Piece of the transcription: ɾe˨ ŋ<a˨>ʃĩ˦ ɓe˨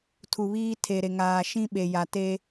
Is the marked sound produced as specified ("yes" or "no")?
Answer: no